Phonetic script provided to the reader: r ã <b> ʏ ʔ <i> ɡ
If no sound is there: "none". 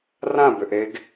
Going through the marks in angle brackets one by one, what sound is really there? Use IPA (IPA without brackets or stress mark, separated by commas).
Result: b, e